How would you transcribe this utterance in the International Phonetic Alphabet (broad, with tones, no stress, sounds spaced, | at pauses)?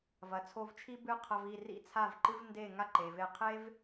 v ɐ˩ t͡sʰ o˧ v t͡ʃʰ i˥ b ɨ˥˩ qʰ ɐ˧ v i˥˩ r ḭ˥˩ t͡sʰ a˥˩ v ǃ ɨ˥ v n d e˥˩ ŋ a˥ ǃ e˩ v e˧ qʰ e˥ v